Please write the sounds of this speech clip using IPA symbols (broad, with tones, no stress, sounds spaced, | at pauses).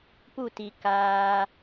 p u˦˨ t i˨ k aː˧